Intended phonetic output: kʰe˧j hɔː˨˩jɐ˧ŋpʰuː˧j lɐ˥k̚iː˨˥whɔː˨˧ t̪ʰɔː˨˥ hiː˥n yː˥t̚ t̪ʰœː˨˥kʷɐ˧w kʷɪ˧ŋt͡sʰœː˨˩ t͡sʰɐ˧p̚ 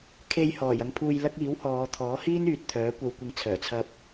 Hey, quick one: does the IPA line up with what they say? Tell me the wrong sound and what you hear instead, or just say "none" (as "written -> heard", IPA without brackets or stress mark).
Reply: yː˥ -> yː˨